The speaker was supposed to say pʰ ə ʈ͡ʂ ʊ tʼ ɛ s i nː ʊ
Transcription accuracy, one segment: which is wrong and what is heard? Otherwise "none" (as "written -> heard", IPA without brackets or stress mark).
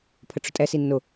none